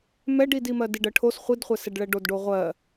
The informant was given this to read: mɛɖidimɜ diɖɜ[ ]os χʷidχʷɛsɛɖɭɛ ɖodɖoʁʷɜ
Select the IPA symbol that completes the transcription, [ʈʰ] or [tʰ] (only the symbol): ʈʰ